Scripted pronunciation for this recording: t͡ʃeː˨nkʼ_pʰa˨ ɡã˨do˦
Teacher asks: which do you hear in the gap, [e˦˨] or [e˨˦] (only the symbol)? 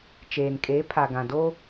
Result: e˨˦